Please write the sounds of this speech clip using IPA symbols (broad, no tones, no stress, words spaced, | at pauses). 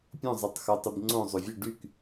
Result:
pʲõzˤitˤ xotˤib ŋ͡ǀõ zˤovʲʊ ɖyk